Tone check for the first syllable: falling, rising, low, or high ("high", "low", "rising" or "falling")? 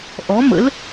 rising